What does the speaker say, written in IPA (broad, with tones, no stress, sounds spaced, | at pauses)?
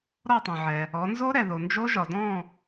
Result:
ɾ ɔ˥˨ tˤ õ˩ ʕ ɛ˩ | ɔ˩˧ n z o˦˥ ɾ ɛ˩ ð o˩ n d͡ʒ o˦˥ ʒ ɒ˩ d ɔ̃˥˨